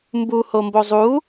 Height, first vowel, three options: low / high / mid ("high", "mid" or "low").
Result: high